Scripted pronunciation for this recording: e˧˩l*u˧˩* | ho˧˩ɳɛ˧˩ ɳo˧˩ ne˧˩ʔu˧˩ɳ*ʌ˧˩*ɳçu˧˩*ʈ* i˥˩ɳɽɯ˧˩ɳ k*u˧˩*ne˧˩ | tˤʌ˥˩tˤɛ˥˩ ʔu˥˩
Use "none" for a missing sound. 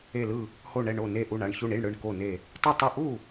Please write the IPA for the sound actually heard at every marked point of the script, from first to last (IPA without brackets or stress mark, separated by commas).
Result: ɯ˧˩, a˧˩, ɳ, o˧˩